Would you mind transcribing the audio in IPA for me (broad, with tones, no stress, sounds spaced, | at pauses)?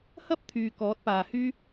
h ɐ˥ p̚ t̪ʰ yː˨ k ɔː˨˥ t̚ p aː˨ h yː˥